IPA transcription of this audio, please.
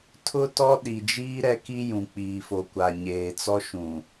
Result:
tʰʊ˦tɔ˦ɗi˨d͡ʒiː˦ ɾɛ˦ki˦ jũ˨k͡piː˨fo˨ kʷa˨ ɲeː˨t͡sɔ˦ ʃũ˨

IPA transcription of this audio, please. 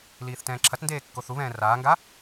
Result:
liːθtɛ̃ːǁʰɐtndeː kːoθuβɛ̃ː raːŋɡa

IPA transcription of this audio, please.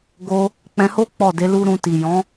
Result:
ɡo˧ | k͡pɛ̃˧ho˦ k͡pɔ˦˨de˨˦lu˦ ɾũ˧ti˨ jɔ̃˨˦

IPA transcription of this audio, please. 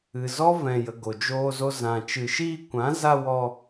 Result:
ɨ˨zɔ˦vɛ̃˨jə˨ ɡo˨d͡ʒoː˧zo˧ zã˨ t͡ʃɨ˨ʃiː˧kʷã˨˦za˧ wɔ˧

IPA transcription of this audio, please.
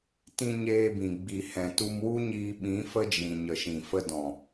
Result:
tĩ˧ ɲeː˧bĩ˨ ɡ͡bi˨hɛ̃˨tu˧mwu˦ ɲiː˧ɓĩ˨˦ fə˦d͡ʒĩ˨ ɲə˨ʃĩ˨fə˧ dɔ̃˨

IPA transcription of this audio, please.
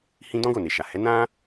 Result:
hĩ˧ dɔ̃˦ɡo˦˨ne˨ʃa˨ hɛ˨˦ nã˦

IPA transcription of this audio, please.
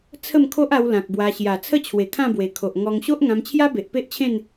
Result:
t͡sʰə˥˧mkʰo˦ʔa˧w lã˨k̚ bwa˧ ɕja˨˩t͡sʰə˥˧t͡ɕʰwe˨˩ kʰã˥˧bwe˨˩ kʰo˨ʔŋɔ˧ŋ ɕo˦ʔŋã˧mt͡ɕʰja˦ be˨ʔpe˦ʔt͡ɕʰẽ˥˧n

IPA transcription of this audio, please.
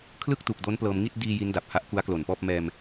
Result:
kʰlɯ˥˩k̚ tu˨˩k̚do˦˥n plɤː˧m ŋi˥˩t̚ diː˧ ji˦˥nda˨˩p̚ha˦˥ʔ ku˦˥a̯klo˨˩npɔː˥˩p̚ mɛː˧m

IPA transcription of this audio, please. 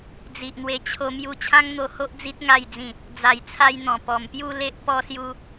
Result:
d͡zi˨ʔn̪we˧ t͡ɕʰo˧mju˧ t͡ɕʰã˦ŋn̪o˧ho˦ʔ d͡zi˦t̚ ŋa˥˧jd͡zĩ˥˧ | d͡za˨˩jt͡sʰa˧jn̪ɔ̃˨˩ pɔ˨˩mpju˥˧le˦ʔpɔ˦ sju˦

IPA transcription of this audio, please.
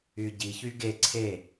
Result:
yɟiçy ɡe ǀʰe

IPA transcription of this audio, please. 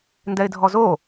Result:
ndɛɪ̯dʱɔzo

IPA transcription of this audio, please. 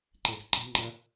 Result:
ǃezǃə̤ŋ͡ǃɐ

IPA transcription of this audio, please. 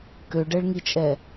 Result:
køɖɛɭŋit͡ʃʼɛ

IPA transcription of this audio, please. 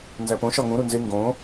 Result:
nzæpõ ʃɒŋũ ɾunze ŋɡõ

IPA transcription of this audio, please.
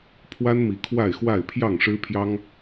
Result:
pʰwa˦nmi˨˦ kʰwa˥˨ɪ̯xwa˥˨ɪ̯ pʰjɑ˥˨ŋʂɻ̩˦pʰjɑ˦ŋ

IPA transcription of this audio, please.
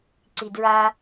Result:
ǀidɹa

